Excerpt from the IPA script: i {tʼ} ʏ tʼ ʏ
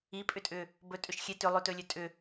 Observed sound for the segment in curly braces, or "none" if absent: pʼ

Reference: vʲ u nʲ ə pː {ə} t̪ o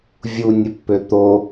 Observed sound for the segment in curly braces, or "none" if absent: ø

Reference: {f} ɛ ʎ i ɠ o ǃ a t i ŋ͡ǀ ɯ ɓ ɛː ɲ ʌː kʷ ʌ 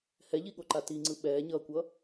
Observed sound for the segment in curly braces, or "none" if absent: h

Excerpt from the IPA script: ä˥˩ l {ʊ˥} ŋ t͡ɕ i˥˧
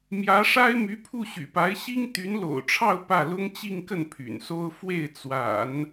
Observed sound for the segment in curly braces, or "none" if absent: ʊ˥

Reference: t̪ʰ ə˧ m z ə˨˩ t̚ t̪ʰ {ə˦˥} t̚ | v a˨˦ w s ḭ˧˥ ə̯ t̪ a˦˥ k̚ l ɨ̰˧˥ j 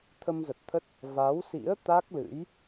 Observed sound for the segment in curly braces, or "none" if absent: ə˦˥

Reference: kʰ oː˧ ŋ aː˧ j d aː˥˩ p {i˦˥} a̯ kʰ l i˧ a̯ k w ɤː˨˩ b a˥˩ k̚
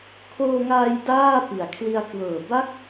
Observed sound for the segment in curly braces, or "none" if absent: i˩˦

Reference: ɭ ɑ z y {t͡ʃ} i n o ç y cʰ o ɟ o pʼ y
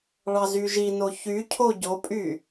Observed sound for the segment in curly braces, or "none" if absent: ʒ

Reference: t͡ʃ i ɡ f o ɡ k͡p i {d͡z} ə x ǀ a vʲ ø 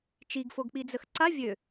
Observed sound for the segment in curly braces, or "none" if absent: d͡z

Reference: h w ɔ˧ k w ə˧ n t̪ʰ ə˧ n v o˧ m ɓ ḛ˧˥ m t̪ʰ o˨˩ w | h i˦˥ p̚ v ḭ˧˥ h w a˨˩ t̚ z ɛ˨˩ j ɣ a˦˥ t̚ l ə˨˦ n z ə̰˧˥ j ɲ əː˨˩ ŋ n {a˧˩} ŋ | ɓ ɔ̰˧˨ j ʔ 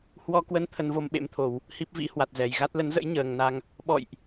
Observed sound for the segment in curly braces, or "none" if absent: a˧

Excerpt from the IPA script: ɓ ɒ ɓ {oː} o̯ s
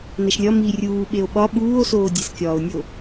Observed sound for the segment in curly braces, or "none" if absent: uː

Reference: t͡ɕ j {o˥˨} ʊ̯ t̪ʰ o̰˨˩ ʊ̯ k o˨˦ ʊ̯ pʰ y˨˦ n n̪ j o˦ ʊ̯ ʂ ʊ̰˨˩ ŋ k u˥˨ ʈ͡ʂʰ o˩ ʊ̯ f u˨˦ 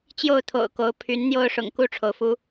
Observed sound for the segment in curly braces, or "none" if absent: o˥˨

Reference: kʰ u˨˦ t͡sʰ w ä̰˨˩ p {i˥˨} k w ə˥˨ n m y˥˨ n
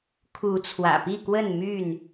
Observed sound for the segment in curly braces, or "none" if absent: i˥˨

